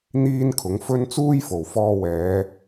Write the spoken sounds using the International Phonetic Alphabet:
n̪ iː˧ n kʰ ʊ˨˥ ŋ f ɵ˥ n t͡s uː˥ j f o˨˩ w f ɔː˧ w ɛː˨˧

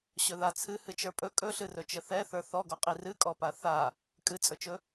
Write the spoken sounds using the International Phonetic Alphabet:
ɕ ɵ ð a t͡sʰ ɨ h ɨ t͡ʃ ə˞ pʼ ɵ kʼ ɵ ɬ ɨ r ɵ t͡ʃ ə θ ɛ θ ə˞ θ ɔ ɡ ɔ qʼ i r ɨ kʼ ɔ p a θ a | kʼ ɨ t͡sʼ ɵ t͡ʃ ɵ

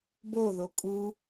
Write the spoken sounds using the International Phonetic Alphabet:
b o ð o kʼ u

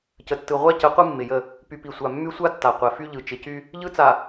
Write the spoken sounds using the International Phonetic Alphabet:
c ə˨ tː ɯ˨ ʁʷ a˦ c ə˨˦ qʷ ɯ˦ mː ɪ˨ j ə˦˨ | p y˨ p i˨ sʷ a˨ mː y˦ sʷ a˦ tː a˨ qʷ ɛ˨ f y˦ ʎ ɯ˨ t͡ʃ ɪ˨ c y˦ | ʎ ɯ˦ t͡s a˨

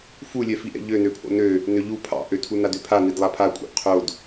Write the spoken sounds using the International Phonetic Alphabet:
f u lʲ ɛ f i ʔ ɛ̰ ʎ ø n ø pʰ o̰ n ø | n ø ʎ u pʰ ɑ̰ ʔ ø tʰ u n a d ø pʰ a n i d lˠ a pʰ a kʷʼ ɑ̰ ʔ qʰ o d

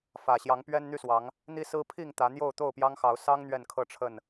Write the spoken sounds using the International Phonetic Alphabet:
f ä˨˩ ɕ j ɑ˨˦ ŋ p ɥ ɛ˦ n n̪ y˥˨ s w ɑ˨˦ ŋ | n̪ i˦ s ɹ̩˦ pʰ i˥˨ ŋ t̪ ä˨˦ n̪ j o˥˨ ʊ̯ t̪ o˥˨ ʊ̯ p j ɑ˦ ŋ x ɑ˨˦ ʊ̯ s ɑ˦ ŋ n̪ ɥ ɛ˥˨ n kʰ ɤ˥˨ ʈ͡ʂʰ ə˥˨ n

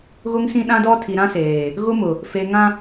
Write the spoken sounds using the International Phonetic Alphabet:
ɣ ʊ˦ ŋ s ĩ˦ ɗ ã˦ d ɔ˦ tʰ i˨ ɾ ã˦ s eː˨ | ɣ ʊ˦ m ʊ˨ | f e˨ ŋ ã˦

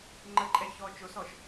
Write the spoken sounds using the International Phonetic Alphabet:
ŋ͡ǃ ə ǃʼ ɛ ç ɔ t͡ʃ o s ɔ ʃ

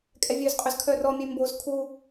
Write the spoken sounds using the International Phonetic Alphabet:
kʼ ɛ vʲ ø z qʼ ø z kʰ œ r ɔ mʲ ʉ m b o z kʰ u

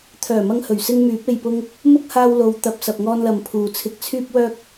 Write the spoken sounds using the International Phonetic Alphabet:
t̪ʰ œː˨˩ m ɐ˧ ŋ h ɵ˨˩ ɥ s ɪ˧ ŋ m yː˨˥ p̚ e˨ j p ʊ˧ ŋ | m ʊ˥ k̚ h aː˧ w l o˨˧ w t̪ ɐ˨ p̚ s ɐ˨ p̚ ŋ ɔː˧ n l ɐ˨ m pʰ uː˨ t͡sʰ ɪ˧ k̚ t͡sʰ yː˥ p̚ w œː˥ k̚

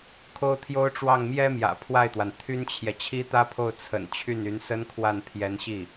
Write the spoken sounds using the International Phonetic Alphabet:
kʰ o˥ ʊ̯ t̪ʰ j o˥ ʊ̯ ʈ͡ʂ w ɑ˥˩ ŋ m j ɛ˥ m j ä̰˨˩ pʰ w a˥˩ ɪ̯ t̪ w a˩ n t̪ʰ y˥ n t͡ɕʰ j ɛ˨ t͡ɕʰ i˥ t̪ ä˥ pʰ o˥˩ ʊ̯ t͡sʰ ə̰˨˩ n t͡ɕʰ y˥˩ n y˧˥ n s ə˥ n kʰ w a˥˩ n pʰ j ɛ˧˥ n ɕ i˥˩

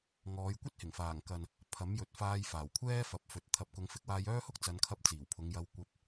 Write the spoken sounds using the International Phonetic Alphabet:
ŋ ɔː˨˧ j kʷ ɐ˥ t̚ h ɪ˨˩ ŋ f aː˨˩ ŋ k ɐ˨ n | pʰ ɐ˨˥ m j ɵ˨ t̚ f aː˧ j f aː˨˩ w kʷʰ ɛː˥ f ɐ˨˥ p̚ f ɵ˨ t̚ t̪ʰ ɐ˨ p̚ k ʊ˨˧ ŋ f ɪ˨˥ k̚ w aː˧ j œː˥ h ʊ˥ k̚ t͡s ɐ˨˧ n kʰ ɐ˧ p̚ t͡s iː˨˩ w pʰ ʊ˨˧ ŋ j ɐ˧ w kʷ ɐ˧ p̚

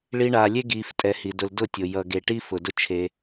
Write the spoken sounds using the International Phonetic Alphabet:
ɭ i˧ ɳ aː˨ lʲ e˦ ɡ iː˧ f tʼ ɛ˧ h i˨ d ʊ˧ l d ʊ˦˨ tʲ ʊ˨ j ʌ˨ ɡ e˨ ʈ i˦ f ʊ˨ d ʊ˦ t͡ʃʰ e˧

